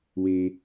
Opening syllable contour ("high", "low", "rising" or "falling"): low